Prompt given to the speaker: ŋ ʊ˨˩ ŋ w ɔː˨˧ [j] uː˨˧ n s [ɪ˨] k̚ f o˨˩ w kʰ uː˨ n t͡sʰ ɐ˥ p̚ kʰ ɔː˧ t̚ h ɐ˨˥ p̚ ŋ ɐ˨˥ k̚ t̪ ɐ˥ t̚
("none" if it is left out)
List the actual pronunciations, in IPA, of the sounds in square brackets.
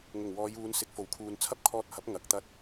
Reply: j, ɪ˨

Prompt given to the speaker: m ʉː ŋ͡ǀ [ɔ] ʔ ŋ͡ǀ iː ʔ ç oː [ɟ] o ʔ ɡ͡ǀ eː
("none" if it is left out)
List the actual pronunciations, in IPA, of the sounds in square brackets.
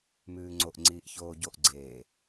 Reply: o, ɟ

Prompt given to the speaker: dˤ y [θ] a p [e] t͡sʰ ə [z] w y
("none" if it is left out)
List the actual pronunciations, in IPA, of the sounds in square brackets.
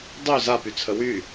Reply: z, y, none

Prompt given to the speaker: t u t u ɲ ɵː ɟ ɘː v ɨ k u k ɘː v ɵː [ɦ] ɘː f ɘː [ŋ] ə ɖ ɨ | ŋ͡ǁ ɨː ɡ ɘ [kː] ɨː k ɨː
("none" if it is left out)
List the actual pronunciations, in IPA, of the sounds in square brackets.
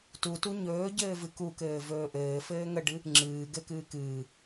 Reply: ʔ, ŋ, k

